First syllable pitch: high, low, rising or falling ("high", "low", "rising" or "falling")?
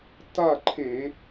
falling